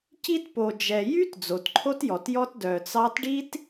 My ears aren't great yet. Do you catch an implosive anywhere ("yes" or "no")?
no